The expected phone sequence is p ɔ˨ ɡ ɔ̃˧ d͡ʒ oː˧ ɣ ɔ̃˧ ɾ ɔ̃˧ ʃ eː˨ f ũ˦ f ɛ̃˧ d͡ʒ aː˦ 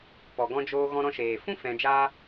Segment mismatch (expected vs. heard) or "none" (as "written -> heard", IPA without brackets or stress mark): none